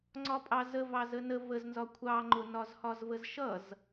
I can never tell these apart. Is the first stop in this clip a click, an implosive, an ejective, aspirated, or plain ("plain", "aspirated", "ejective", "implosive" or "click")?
click